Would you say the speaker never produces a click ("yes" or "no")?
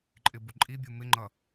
no